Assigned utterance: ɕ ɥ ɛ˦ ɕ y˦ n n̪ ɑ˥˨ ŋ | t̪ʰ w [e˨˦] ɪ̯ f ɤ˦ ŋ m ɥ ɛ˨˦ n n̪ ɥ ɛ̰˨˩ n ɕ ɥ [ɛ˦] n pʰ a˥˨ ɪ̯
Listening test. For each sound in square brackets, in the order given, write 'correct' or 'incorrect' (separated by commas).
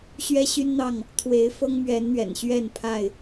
correct, incorrect